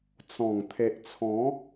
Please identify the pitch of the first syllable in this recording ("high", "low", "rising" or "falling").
low